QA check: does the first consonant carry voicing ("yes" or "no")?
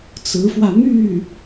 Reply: no